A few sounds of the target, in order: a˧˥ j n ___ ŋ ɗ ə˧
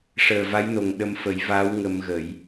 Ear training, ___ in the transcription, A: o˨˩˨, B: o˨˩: B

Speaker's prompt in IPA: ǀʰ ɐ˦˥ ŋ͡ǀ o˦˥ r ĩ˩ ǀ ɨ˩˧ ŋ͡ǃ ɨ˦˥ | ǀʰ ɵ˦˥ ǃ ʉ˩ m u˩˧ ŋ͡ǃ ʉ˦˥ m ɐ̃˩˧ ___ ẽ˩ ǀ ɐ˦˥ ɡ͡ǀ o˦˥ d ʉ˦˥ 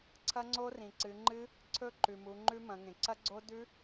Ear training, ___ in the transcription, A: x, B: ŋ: B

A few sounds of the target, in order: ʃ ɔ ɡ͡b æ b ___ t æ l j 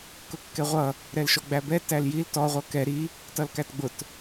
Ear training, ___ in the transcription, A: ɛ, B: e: A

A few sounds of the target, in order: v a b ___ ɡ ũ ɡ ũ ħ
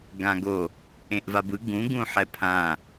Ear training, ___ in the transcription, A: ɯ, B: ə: A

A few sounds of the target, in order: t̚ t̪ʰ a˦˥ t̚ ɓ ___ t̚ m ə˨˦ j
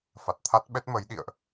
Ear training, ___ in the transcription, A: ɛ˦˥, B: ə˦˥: A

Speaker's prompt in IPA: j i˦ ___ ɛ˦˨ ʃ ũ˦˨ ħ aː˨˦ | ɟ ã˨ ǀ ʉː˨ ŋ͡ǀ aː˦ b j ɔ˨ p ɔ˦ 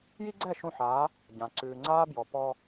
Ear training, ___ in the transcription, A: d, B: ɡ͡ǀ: B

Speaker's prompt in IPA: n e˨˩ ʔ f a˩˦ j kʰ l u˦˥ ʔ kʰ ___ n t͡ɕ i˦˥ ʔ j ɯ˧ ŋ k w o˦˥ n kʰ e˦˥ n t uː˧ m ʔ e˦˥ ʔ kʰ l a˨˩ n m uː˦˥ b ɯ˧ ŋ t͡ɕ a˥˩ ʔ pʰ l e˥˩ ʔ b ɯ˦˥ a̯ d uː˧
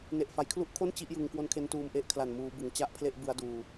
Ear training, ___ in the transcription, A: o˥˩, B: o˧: A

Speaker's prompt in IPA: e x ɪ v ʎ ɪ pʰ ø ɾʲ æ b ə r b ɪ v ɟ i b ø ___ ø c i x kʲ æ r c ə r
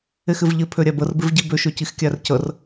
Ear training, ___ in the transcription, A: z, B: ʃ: B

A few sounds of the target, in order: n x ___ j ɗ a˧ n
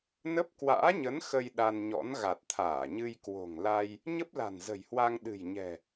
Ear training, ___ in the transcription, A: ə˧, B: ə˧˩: A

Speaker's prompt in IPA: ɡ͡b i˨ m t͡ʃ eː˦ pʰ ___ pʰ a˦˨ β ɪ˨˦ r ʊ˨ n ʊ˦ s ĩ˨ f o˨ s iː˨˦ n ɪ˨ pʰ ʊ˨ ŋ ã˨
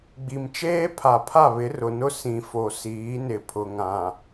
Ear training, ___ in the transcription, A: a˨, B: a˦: A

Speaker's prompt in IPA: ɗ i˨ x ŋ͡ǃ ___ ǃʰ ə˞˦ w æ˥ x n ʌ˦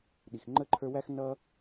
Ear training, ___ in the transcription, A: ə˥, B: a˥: A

